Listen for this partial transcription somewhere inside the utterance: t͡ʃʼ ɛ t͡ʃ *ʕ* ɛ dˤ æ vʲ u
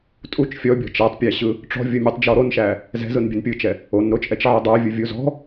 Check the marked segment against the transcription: correct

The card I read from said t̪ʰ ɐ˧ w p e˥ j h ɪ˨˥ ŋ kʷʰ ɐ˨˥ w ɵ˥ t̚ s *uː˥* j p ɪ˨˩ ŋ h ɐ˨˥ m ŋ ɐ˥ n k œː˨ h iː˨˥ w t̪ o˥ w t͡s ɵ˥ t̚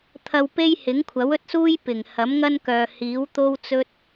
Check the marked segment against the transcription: correct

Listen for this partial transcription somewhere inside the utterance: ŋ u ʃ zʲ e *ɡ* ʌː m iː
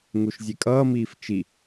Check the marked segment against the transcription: incorrect: kʼ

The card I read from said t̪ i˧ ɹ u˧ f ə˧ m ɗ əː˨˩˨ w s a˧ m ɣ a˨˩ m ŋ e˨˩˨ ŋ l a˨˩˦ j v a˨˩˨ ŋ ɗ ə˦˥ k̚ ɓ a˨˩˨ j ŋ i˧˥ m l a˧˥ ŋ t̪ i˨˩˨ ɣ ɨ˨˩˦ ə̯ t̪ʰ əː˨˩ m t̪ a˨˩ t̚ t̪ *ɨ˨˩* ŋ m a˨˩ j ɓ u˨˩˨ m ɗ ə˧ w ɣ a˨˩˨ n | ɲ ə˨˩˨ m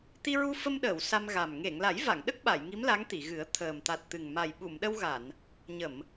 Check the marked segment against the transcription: correct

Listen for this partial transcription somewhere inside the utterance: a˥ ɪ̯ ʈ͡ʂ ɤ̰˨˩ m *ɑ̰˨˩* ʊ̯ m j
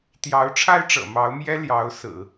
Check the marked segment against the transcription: incorrect: ɑ˧˥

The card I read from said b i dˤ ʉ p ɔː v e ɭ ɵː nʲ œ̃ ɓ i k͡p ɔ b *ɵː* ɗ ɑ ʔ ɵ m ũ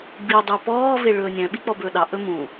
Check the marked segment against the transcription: correct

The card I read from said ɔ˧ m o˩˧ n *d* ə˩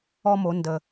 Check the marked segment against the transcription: correct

